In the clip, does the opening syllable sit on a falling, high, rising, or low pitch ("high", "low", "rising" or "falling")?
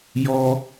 high